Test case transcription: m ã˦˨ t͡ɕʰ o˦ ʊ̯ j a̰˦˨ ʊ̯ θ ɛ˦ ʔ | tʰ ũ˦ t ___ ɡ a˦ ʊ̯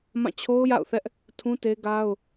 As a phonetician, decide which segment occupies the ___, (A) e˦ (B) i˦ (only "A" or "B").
A